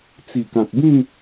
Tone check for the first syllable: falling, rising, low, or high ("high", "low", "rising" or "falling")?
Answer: low